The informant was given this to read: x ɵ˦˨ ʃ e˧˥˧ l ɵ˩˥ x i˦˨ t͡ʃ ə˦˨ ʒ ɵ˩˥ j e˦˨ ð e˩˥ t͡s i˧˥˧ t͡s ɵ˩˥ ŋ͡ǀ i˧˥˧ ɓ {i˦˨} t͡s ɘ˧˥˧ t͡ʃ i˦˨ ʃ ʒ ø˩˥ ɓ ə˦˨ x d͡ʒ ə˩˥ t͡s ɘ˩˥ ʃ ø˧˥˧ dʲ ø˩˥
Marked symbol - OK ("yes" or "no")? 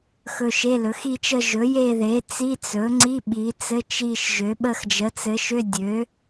no